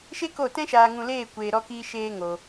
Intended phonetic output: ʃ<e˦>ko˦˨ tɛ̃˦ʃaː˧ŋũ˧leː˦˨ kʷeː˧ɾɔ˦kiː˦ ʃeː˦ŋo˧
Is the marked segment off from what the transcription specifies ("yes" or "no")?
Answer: no